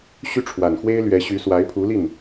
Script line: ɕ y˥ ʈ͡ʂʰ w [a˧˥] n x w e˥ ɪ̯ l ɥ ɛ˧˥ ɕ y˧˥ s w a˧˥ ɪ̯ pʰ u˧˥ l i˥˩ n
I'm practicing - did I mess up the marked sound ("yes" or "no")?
yes